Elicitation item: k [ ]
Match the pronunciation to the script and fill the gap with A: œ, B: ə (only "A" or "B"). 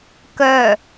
A